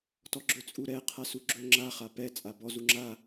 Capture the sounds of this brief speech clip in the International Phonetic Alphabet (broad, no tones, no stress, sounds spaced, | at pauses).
t ɔ ɡ͡ǁ ɵ t͡sʼ u ɾ ɛ qʰ a s u ɡ͡ǁ ɵ ŋ͡ǁ a χ a p ɛ t͡sʼ a b ɔ z u ŋ͡ǁ a